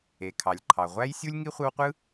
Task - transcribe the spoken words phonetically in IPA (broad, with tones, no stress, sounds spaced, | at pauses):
e˩ kʰ ɑ˩ lʲ ǃʰ ɑ˩ ʁʷ æ˥ j sʲ u˥ lʲ ŋ i˥ χʷ ɯ˦ w qʷ ɯ˥